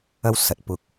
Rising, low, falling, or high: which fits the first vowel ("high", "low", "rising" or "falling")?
high